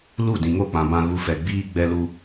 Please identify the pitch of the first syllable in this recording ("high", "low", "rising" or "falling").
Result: falling